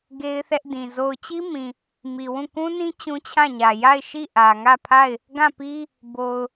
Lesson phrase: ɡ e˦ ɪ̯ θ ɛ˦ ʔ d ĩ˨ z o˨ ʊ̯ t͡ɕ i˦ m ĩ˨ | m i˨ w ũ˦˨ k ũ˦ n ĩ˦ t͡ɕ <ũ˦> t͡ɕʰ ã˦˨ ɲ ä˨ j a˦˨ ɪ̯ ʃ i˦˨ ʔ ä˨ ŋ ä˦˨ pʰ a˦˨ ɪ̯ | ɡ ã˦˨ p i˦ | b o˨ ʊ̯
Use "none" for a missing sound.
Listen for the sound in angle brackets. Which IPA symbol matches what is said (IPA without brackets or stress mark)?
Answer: ũ˦